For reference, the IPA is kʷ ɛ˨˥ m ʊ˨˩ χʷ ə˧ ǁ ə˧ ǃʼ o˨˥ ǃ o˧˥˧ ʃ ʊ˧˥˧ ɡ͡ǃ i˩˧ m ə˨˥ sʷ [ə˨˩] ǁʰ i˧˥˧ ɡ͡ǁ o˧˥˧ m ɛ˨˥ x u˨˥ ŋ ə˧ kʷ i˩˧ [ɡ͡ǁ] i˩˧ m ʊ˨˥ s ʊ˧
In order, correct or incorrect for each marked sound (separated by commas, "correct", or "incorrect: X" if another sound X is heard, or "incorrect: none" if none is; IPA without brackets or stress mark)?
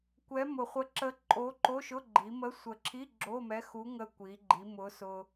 correct, incorrect: ɡ͡ǃ